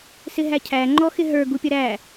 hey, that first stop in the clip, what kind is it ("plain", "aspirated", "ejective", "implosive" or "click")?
aspirated